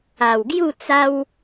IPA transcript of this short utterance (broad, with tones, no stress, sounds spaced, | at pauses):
a˨˩ w ɡ j u˥˧ t͡s a˦ w